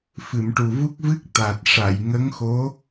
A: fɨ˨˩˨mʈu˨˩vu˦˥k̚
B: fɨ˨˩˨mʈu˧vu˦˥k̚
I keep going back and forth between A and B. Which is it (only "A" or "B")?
A